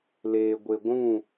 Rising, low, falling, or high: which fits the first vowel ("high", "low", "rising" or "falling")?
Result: low